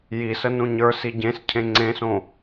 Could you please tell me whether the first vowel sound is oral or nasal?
oral